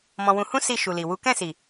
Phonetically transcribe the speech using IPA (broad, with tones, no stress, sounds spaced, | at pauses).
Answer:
m ɔ̃˧ w ũ˧ h ũ˦ s i˦˨ ʃ u˨ l i˨ w u˨˦ k ɛ̃˦˨ s i˨